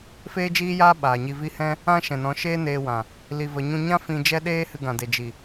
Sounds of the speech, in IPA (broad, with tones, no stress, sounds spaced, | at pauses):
f eː˦ d͡ʒ iː˦ j aː˦ ɓ aː˨ ɲ i˧ v i˦ h ɛ̃˦ | ã˦ ʃ ɛ̃˨ n ɔ̃˨˦ ʃ eː˦ n eː˧ w ã˨ | l i˧ v ə˧ ɲ ũ˦ ɲ ã˦ f ĩ˧ d͡ʒ ɛ˦ ɗ eː˦ h ɨ˧ ɡ ã˨ d e˨ d͡ʒ i˨